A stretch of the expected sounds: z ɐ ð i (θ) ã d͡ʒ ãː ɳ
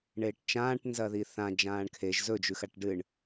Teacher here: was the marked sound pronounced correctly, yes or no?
yes